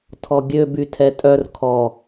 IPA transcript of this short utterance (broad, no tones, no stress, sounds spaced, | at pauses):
tʰ ɔ ɡʲ ø b y tʰ ɛ tʼ œ r kʰ ɔ